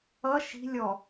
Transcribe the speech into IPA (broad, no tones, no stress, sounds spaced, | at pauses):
ʌ ʃ i̤ lʲ ɔ